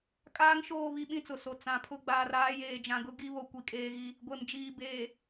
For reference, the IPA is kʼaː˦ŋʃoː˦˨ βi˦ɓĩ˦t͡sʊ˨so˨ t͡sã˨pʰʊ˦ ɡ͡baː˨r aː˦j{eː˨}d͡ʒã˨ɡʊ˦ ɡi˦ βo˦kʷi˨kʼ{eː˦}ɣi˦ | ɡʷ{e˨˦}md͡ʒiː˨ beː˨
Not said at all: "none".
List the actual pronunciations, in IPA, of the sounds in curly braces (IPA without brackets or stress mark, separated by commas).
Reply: eː˨, eː˦, e˨